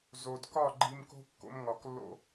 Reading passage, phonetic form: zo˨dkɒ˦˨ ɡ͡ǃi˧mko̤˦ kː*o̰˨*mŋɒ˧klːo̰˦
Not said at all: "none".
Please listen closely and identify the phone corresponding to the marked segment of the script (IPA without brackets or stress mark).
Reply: o̰˦